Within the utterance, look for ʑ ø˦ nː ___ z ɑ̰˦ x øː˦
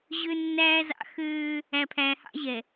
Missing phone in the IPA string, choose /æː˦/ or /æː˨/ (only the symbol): æː˦